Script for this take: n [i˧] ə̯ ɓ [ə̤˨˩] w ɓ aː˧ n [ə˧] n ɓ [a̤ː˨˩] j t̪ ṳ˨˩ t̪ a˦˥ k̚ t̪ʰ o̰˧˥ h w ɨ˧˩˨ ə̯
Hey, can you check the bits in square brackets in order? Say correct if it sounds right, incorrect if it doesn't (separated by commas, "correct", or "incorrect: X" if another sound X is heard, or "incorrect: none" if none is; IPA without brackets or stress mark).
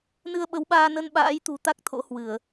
incorrect: ɨ˧, incorrect: ə˨˦, correct, incorrect: a̰ː˧˥